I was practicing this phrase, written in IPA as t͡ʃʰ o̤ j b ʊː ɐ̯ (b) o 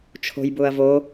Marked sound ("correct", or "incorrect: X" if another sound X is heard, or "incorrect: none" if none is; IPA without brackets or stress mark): incorrect: v